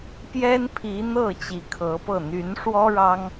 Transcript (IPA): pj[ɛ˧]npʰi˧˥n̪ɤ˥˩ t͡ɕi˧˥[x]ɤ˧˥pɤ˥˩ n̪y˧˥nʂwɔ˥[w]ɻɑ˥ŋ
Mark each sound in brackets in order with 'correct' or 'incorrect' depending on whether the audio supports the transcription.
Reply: incorrect: ɛ˥, incorrect: kʰ, incorrect: none

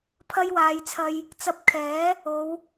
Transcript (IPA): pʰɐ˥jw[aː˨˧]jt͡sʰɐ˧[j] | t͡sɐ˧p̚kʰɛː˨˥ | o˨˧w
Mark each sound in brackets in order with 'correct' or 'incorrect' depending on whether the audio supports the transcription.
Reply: correct, correct

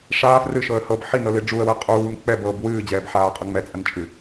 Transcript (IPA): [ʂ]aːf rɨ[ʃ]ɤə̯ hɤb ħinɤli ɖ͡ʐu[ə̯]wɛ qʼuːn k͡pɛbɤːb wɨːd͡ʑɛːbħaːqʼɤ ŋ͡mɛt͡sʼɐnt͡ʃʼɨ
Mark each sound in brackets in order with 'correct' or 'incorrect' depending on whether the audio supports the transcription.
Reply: correct, correct, correct

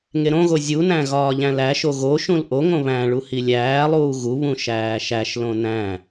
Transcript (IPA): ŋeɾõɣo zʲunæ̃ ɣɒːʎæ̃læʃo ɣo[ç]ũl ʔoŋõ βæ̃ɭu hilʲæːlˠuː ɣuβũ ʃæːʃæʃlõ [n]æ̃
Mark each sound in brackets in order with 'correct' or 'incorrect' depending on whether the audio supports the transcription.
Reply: incorrect: ʃ, correct

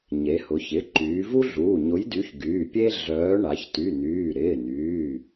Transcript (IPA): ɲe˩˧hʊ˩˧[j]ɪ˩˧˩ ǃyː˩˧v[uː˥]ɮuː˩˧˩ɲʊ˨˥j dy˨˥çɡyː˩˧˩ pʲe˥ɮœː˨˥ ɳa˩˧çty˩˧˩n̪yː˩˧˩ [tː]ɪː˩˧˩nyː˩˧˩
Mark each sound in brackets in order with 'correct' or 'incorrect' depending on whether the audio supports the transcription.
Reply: incorrect: ç, incorrect: u˥, incorrect: ɾ

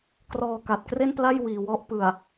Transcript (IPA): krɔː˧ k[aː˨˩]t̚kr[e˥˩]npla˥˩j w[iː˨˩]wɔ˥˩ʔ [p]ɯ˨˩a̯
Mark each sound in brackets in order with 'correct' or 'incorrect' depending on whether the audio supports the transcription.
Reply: incorrect: a˨˩, correct, correct, correct

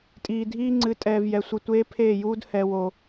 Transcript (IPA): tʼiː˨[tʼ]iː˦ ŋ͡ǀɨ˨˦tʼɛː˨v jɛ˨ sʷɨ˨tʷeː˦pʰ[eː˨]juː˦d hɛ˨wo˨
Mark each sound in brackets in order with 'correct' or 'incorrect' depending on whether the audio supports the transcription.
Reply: incorrect: dʱ, incorrect: eː˦˨

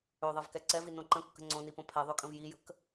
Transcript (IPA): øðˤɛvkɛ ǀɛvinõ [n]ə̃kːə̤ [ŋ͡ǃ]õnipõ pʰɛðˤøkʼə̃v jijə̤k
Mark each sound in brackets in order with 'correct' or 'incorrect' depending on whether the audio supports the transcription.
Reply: incorrect: ǃ, incorrect: ŋ͡ǀ

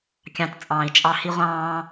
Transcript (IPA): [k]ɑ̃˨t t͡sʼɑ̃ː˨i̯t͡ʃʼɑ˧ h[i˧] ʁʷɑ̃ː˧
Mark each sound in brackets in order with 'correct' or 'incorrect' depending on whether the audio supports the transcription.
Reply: incorrect: kʲ, correct

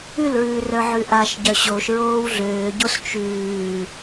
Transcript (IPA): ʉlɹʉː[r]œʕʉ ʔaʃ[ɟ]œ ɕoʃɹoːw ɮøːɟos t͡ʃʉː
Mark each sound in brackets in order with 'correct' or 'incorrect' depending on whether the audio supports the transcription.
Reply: correct, correct

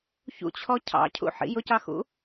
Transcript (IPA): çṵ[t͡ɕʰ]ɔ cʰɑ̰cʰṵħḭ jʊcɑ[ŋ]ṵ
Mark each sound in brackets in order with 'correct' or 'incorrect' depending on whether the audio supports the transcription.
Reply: correct, incorrect: x

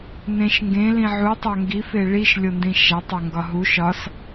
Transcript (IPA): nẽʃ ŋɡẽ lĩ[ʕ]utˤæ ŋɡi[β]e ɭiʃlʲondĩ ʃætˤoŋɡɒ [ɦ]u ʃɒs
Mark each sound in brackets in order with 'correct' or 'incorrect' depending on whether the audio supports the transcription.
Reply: correct, incorrect: f, correct

